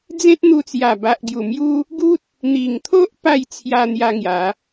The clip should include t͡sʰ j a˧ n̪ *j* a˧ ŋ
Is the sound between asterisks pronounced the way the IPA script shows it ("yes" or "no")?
yes